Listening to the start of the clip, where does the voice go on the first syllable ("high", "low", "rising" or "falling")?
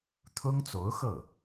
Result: high